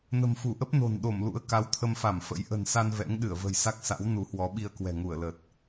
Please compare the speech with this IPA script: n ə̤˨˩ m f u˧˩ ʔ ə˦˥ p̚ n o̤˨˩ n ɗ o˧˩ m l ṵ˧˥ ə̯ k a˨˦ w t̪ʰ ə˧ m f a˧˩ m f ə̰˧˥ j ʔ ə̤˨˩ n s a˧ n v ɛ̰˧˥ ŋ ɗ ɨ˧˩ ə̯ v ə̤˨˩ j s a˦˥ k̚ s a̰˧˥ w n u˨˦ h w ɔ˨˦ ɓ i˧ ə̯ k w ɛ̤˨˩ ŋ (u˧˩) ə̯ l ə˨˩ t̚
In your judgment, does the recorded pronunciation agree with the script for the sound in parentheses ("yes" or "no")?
yes